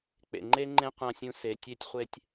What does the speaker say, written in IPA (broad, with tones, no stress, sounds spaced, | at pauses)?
k͡p ḛ˨ ŋ͡ǃ e˦ ŋ͡ǃ ẽ˦ qʷ ã˨ sʲ ũ˨ s e˨ tʲ e˦ tʲ χʷ e˦ tʲ